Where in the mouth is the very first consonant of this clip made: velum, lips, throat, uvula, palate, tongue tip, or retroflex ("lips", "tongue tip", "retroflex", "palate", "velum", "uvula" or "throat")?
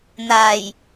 tongue tip